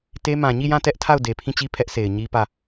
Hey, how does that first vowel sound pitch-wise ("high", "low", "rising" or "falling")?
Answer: high